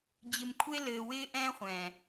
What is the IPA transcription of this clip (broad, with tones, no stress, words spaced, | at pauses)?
d͡ʑɪ˧mkʷʰe˦ lɘː˧wɪː˦ʔɛ̃ː˦χʷɛ̃ː˨